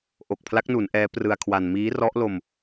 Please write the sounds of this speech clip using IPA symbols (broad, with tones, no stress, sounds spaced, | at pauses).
ʔ o˨˩ k̚ pʰ l a˦˥ k̚ n u˩˦ n ʔ ɛː˦˥ p r ɯ˧ a̯ kʰ w a˧ n m iː˦˥ r ɔ˦˥ ʔ l o˧ m